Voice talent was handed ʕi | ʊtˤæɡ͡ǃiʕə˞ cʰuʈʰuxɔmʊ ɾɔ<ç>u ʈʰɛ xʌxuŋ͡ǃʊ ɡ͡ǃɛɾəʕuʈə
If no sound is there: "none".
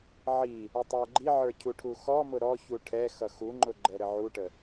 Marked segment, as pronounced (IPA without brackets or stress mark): ç